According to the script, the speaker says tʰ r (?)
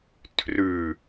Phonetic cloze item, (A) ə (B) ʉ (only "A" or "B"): B